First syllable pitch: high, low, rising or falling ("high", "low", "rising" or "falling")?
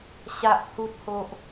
low